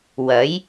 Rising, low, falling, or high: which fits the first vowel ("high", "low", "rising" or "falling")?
rising